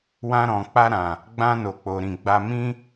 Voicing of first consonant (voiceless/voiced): voiced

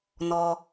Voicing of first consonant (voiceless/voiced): voiced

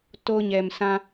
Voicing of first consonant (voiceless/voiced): voiceless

